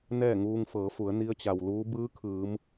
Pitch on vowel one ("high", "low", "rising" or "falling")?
falling